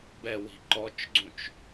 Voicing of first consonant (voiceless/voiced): voiced